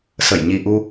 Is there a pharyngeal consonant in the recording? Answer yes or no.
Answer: no